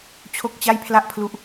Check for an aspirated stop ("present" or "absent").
present